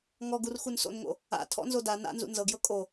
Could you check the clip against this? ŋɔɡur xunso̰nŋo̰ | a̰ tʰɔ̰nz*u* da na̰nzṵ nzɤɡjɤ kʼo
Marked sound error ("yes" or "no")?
yes